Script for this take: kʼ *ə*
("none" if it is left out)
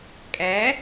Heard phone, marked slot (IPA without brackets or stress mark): æ